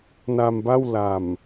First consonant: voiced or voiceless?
voiced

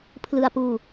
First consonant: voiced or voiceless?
voiceless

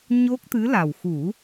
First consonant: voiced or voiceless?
voiced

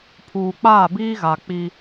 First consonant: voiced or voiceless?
voiceless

